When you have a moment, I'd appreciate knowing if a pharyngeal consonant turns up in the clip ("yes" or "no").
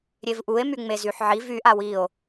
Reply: yes